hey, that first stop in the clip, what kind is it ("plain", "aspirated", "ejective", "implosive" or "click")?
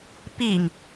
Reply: plain